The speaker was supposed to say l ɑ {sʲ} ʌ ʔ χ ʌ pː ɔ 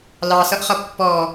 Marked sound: incorrect: s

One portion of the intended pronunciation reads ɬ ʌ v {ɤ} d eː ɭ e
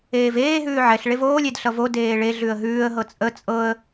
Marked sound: incorrect: o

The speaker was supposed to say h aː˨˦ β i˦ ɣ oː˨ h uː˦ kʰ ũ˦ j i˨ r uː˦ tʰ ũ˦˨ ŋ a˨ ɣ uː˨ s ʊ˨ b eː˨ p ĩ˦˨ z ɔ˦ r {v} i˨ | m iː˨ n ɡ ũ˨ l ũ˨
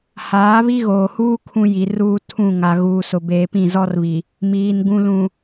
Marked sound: incorrect: β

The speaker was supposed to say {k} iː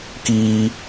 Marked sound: correct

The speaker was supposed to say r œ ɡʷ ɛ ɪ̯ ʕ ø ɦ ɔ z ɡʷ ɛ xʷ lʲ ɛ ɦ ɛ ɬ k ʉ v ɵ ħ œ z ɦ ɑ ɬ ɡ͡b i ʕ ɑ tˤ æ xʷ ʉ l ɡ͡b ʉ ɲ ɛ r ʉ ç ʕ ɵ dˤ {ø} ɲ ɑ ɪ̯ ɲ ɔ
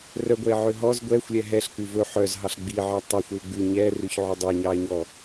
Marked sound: incorrect: ʉ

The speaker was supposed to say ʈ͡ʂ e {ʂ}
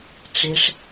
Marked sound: correct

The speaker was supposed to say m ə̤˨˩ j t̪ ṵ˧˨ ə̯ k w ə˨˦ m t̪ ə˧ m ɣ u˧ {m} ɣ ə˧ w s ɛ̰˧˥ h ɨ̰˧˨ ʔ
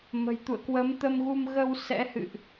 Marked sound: correct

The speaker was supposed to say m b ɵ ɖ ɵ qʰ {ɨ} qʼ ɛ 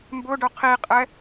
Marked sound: incorrect: i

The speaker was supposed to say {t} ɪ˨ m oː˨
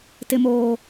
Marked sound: correct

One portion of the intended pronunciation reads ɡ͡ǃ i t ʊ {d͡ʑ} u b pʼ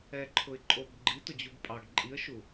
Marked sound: correct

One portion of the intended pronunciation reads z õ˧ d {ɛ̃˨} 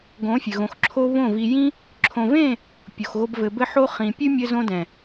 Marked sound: correct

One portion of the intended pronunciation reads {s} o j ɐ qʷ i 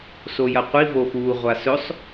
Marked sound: correct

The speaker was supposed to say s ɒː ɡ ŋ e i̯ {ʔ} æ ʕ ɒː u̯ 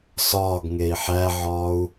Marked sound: incorrect: ħ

